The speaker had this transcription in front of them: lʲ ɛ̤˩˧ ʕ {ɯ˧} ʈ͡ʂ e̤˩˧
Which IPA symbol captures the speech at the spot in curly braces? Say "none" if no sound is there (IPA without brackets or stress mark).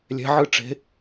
ɯ˧